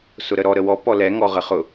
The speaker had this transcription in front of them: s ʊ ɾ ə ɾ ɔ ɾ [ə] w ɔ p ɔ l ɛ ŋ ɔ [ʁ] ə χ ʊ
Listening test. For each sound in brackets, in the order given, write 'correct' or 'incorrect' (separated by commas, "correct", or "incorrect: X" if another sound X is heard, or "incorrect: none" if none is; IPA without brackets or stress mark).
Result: correct, correct